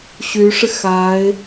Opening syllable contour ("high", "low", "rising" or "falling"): rising